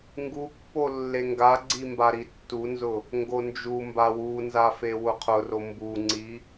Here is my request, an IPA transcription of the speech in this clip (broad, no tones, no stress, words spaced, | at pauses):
ŋɡupːo lːeŋɡaɡ͡ǀi mbaɾitːunzʊ | ŋɡond͡ʒumba wunza fewʊqʰʊro mbuŋ͡ǀi